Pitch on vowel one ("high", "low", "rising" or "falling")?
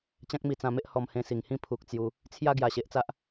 high